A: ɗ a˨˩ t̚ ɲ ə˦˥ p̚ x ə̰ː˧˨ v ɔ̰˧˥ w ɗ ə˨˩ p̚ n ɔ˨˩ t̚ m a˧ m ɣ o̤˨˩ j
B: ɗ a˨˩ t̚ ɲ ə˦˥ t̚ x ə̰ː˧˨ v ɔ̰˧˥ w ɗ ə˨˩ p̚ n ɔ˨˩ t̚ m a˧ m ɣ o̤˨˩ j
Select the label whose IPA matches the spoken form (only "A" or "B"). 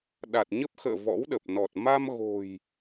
A